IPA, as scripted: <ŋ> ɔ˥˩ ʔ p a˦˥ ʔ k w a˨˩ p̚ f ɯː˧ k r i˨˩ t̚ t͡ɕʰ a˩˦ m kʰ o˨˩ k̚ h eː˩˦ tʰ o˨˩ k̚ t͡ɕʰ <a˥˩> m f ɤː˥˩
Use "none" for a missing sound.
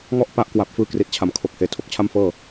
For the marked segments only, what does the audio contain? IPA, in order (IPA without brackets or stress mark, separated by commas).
ŋ, a˥˩